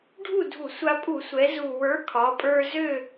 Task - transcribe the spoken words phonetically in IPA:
ɖʱ u˥˨ dʱ u˧˩˧ sʷ a˧ pʼ u˧˩˧ sʷ ɛ˩˧ z u˨˩ w ə˞˨˥ kʰ ɒ˩˧ pʼ ə˞˧ z ø˥˨

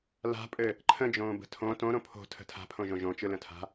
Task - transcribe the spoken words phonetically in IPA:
l a̤ pʼ ɘ | ǃʰ ə̃ d͡ʒ õː b ə̤ tʰ õ t õ ɾ õ pʰ o̤ tʰ ə̤ tʰ a̤ pʰ õ ʒ õ ʒ õ t͡ʃ ɯ l ə̃ tʰ a̤

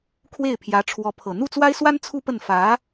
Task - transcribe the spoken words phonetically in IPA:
kʰ w e˥˩ ɪ̯ pʰ j ä˧˥ ʈ͡ʂʰ w ɔ˧˥ pʰ ɤ˨˩ n̪ u˥˩ t͡s w a˥ ɪ̯ s w a˥ n t͡sʰ u˥ p ə˥˩ n f ä˧˥

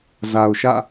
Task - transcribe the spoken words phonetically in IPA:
z a˨ ʊ̯ ʃ ä̰˦˨

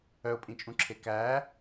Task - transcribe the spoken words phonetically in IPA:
œ ʊ̯ pʼ ĩ t͡ʃʼ ũ ǁʰ e k æ

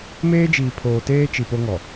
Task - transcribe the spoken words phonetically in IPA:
m eː˦ d͡ʒ iː˨ pʰ oː˨ t eː˦ t͡ʃ i˨ p o˦ ŋ ɔ˨

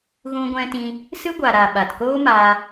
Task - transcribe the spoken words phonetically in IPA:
ɣ ũ˧ ɡʷ ɛ̃˧ t ĩ˧ | s ɨ˦ ɡʷ a˨ ɾ a˨ ɓ a˨ t k oː˦ m aː˧

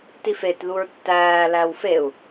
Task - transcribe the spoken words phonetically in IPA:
t i f e t ð u ɹ tː æː l æ w f e u̯

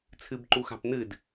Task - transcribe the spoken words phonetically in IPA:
t͡sʰ ɨ b ǃ u x a̤ p n̪ ɨ d

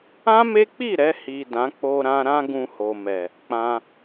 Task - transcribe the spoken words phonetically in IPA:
ã˦ m e˦ k͡p i˦˨ ɾ ɛ˧ h i˨ d ã˨˦ k͡p o˧ ɾ ã˧ ɾ ã˦ ɡ ũ˧ h o˨ m ɛ˨ | k͡p ã˧

